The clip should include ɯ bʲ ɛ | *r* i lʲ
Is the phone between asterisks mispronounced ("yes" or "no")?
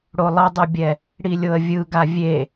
yes